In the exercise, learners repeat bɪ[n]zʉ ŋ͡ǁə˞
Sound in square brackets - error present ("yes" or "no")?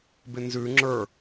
no